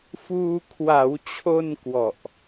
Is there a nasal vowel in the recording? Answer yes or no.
no